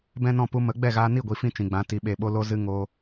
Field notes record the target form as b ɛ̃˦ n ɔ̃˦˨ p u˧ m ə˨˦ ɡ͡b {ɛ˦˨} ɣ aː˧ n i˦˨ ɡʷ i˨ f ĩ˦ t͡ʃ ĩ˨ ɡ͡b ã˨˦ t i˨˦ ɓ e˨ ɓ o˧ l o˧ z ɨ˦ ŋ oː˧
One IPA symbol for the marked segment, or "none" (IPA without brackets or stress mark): ɛ˦˨